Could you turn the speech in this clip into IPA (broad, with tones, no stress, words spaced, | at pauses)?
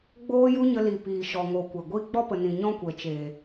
ɡ͡boː˦ju˦ɲə˧ li˨ piː˨ʃɔ˨ ŋo˨˦kʷɛ˨ɡʷi˦ ɡ͡bɔ˦pə˨nĩ˨ ɲɔ̃˦kʷɛ˨ t͡ʃeː˨